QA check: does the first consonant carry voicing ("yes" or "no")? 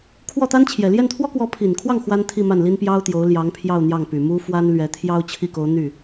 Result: no